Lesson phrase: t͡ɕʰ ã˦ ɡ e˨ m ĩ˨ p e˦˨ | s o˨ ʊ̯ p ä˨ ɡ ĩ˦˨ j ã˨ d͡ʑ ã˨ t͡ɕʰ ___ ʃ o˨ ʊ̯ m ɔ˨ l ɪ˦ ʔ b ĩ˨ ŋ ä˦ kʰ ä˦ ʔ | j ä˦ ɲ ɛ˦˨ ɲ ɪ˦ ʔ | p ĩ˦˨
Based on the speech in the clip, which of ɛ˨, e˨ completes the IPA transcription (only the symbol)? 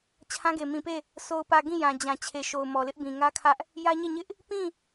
e˨